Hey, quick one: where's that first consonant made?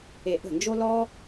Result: throat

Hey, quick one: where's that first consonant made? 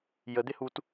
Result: palate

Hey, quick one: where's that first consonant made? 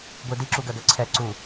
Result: velum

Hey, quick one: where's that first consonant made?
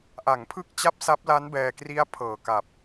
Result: throat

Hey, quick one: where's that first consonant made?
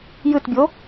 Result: palate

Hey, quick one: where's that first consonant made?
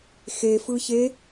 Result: velum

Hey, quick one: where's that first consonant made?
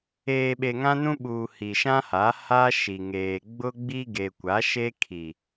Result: lips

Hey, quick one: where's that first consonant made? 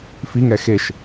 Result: lips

